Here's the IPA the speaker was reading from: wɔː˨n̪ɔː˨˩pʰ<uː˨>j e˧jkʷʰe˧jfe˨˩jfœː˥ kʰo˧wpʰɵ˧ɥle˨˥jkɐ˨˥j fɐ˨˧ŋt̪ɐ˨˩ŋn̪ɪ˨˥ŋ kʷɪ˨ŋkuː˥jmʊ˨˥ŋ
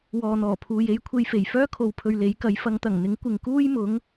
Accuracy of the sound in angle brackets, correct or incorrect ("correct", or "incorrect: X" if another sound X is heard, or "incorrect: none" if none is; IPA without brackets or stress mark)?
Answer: correct